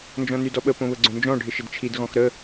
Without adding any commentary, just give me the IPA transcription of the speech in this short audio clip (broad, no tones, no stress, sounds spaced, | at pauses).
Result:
n d͡ʒ ɔ̃ n y d ɔ ɓ ə p õ β ə ɡ͡ǀ õ n d͡ʒ ɔ̃ ɖʱ ɪ ʃ ɪ d t͡ʃʰ i d ɣ ɔ̃ x ɾ ə